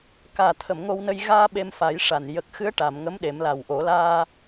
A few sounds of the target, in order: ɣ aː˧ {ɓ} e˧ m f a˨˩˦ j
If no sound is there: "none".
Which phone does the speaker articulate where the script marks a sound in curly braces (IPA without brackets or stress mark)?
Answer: ɓ